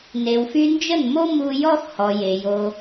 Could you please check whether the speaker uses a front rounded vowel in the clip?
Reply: yes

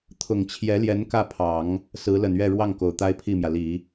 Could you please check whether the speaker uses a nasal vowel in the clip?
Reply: no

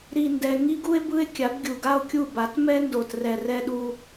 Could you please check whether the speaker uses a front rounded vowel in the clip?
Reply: no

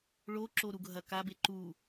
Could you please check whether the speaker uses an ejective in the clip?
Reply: no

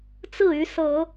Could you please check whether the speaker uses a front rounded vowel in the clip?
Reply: yes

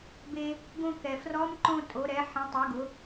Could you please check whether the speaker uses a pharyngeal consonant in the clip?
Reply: yes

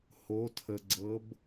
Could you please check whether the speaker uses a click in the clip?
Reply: yes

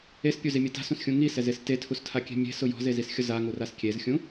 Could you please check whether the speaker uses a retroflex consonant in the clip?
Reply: no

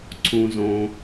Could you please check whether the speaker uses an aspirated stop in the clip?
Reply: yes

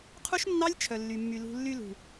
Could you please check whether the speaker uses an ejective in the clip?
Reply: no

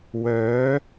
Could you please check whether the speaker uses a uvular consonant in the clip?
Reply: no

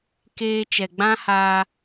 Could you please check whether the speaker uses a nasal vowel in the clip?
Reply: yes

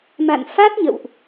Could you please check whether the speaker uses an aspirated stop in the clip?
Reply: no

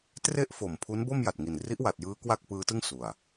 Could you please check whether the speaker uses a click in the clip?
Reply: no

